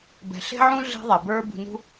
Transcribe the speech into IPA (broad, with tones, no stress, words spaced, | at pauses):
bɛ̤˨ɬe̤˦ʕũ˦ ɮe̤˦ðˤe˨bə˞˦ bṳ˧nṳ˦